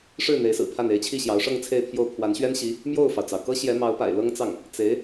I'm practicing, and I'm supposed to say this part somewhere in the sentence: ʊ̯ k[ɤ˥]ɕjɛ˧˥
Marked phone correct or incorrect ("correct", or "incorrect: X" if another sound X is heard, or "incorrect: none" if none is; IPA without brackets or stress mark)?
correct